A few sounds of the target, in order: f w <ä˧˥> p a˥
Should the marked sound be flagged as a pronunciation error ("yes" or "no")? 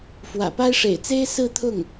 yes